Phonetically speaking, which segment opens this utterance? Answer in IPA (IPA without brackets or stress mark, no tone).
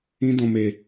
ĩ